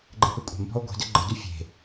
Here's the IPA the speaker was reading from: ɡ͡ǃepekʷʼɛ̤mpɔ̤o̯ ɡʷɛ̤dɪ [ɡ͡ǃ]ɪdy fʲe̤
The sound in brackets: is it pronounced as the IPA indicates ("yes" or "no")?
yes